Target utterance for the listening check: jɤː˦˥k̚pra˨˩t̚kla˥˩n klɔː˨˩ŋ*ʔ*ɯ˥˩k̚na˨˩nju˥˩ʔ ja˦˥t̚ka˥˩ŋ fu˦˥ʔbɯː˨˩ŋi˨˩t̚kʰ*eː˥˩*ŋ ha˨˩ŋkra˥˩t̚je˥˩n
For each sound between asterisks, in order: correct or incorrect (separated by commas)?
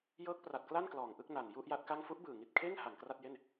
correct, correct